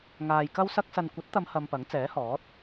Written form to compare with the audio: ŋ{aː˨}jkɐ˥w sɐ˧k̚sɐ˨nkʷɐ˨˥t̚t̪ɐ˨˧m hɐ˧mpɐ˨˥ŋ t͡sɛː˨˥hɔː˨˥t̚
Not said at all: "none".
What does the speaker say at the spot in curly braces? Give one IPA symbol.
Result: aː˨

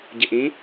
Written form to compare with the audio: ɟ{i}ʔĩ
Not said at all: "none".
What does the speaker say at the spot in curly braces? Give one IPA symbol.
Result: ɪ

